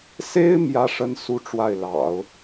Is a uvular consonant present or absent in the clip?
absent